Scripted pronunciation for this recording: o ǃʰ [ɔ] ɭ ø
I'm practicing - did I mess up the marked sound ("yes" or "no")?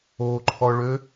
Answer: no